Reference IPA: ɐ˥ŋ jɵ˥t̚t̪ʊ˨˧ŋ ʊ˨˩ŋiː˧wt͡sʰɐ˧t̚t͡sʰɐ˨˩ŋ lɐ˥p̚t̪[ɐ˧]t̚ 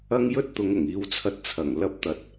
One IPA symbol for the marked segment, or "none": ɐ˧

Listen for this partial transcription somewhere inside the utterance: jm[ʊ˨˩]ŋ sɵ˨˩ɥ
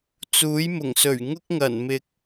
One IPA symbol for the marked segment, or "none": ʊ˨˩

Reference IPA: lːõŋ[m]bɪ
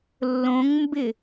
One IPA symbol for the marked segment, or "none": m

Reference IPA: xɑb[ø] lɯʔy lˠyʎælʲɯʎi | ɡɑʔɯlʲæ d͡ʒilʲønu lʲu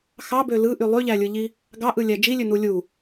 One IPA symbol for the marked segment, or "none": ø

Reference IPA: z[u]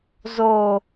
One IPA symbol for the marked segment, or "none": o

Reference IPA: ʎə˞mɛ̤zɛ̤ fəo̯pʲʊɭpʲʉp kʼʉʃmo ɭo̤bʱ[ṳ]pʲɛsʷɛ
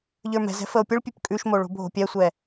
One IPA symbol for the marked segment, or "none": o̤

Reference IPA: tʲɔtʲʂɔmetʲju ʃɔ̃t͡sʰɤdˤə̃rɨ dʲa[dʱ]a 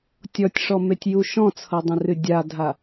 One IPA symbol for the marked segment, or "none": dʱ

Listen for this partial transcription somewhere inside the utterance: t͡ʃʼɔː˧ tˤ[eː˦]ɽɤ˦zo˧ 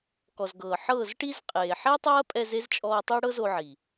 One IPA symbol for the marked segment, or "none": e˦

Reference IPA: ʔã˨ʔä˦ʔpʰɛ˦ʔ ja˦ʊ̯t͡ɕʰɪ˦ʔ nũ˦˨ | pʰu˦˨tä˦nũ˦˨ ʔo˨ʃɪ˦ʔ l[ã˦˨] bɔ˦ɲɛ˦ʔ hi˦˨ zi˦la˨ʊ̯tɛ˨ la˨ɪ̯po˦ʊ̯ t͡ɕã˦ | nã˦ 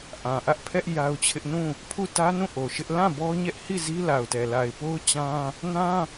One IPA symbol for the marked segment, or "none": ã˦˨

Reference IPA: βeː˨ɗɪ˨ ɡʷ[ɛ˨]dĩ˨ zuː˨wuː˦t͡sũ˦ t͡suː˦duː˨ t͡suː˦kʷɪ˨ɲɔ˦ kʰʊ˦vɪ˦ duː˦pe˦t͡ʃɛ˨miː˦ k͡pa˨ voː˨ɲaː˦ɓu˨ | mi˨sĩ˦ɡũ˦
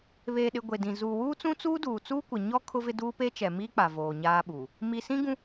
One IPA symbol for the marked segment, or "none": e˨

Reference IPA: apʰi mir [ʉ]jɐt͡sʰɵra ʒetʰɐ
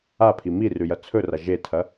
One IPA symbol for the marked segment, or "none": ʉ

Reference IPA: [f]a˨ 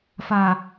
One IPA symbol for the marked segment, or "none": f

